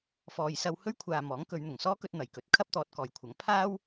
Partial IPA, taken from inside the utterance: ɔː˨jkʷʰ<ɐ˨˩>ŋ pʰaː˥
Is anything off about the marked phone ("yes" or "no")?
yes